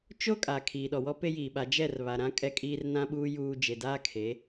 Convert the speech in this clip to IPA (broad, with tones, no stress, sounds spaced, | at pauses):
t͡ʃ o˦ kʼ aː˨ kʰ iː˨ ɗ ɔ˨ w ɔ˦ p e˦ j iː˨ ɓ a˨˦ d͡ʒ ɛ˦˨ r β a˨ ɾ ã˦ kʼ ɛ˦ kʼ iː˦ r n ã˦ ɓ uː˦ j uː˦ d͡ʒ e˨ d aː˦ kʰ e˨˦